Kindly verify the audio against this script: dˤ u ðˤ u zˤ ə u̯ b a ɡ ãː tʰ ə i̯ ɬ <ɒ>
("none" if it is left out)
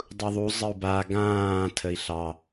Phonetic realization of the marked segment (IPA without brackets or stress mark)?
ɑ